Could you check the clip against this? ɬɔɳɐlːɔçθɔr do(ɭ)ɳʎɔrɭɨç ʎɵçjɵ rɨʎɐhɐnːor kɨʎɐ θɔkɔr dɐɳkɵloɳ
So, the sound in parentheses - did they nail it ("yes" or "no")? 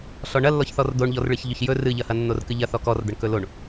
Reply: no